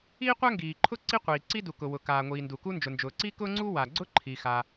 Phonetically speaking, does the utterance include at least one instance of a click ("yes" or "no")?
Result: yes